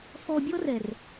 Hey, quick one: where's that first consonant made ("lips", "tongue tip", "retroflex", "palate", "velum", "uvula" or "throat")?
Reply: lips